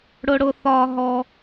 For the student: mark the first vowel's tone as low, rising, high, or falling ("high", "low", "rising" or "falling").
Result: high